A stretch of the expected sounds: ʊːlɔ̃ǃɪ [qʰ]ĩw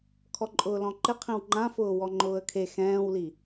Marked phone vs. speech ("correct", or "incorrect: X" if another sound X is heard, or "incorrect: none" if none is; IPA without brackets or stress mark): correct